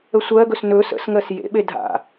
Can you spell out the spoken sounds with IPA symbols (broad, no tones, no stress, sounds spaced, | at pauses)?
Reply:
ə sʷ ɜ ɡ ɵ s n ɵ s ə̰ s ŋ ɜ s j ḛ ɓ e dʱ a̰